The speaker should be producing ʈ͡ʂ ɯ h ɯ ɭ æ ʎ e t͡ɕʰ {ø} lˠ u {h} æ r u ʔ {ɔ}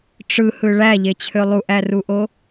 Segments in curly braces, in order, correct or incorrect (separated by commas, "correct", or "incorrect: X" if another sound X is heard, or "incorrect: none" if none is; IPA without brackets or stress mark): correct, incorrect: ʔ, incorrect: o